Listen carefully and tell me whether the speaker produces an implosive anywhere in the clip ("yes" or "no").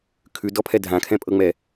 no